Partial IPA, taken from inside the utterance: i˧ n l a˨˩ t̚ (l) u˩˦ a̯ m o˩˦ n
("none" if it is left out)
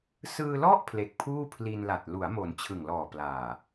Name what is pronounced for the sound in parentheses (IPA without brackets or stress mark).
l